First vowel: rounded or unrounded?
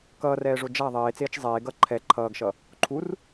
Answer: unrounded